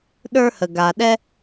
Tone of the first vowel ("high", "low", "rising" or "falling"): high